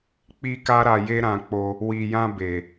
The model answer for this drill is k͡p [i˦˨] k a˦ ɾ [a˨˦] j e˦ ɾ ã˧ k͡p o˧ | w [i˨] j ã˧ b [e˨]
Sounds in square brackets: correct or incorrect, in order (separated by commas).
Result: incorrect, incorrect, correct, correct